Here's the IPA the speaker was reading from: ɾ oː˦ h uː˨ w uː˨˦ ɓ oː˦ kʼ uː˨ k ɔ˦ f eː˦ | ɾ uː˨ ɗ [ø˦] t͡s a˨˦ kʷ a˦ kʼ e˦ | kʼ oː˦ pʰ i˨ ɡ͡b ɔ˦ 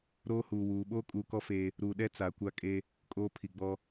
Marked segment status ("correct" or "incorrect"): incorrect